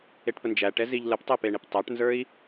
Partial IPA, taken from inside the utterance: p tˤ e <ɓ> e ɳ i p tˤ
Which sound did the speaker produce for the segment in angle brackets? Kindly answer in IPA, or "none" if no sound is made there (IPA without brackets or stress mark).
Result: p